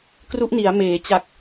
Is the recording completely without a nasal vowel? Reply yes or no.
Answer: yes